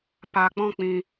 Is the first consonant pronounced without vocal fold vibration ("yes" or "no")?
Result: yes